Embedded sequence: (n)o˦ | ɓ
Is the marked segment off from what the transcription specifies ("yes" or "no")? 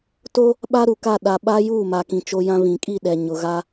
yes